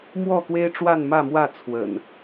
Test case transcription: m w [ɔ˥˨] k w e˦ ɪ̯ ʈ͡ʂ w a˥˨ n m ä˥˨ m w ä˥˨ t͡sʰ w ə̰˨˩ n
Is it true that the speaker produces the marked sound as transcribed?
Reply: yes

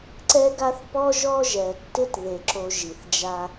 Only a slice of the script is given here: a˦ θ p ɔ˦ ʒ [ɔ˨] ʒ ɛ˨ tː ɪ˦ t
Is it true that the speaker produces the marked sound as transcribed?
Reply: no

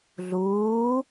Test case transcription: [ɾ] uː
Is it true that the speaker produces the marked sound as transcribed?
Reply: no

